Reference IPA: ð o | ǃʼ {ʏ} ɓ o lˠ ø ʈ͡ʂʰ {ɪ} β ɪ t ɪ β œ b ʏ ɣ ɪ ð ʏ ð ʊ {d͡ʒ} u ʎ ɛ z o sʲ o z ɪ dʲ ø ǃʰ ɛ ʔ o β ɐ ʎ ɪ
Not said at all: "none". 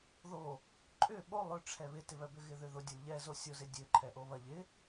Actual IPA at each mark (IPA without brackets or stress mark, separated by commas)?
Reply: ʏ, ɛ, dʲ